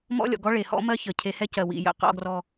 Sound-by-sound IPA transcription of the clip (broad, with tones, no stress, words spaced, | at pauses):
mɔ̰˦lʲɔ̰˨ɡɔ˦ ɭe˨hɔ̰˦mɜ˦ çə˨cʰe˧hɛ˦ cɜ˨wḭ˨ jə̰˦ qɔ̰˧ɡrɔ˧